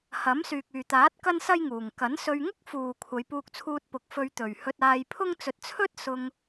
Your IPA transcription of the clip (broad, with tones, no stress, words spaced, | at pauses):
hɐ˨˥msyː˨k̚ yː˨t̪aː˨˥t̚ kɐ˥nsɐ˥jŋuː˨ŋ kɐ˨˥nsɵ˧ɥ ŋʊ˥k̚fuː˨kʷʰɐ˨˧j puː˧k̚t͡sʰuː˧t̚pʊ˨˥k̚ fɵ˧ɥt̪ɵ˨ɥ hɵ˧t̚aː˧jpʰʊ˥ŋ t͡sɵ˧t̚t͡sʰɵ˥t̚sʊ˧ŋ